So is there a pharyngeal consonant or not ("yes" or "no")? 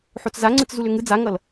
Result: yes